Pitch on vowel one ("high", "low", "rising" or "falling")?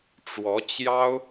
rising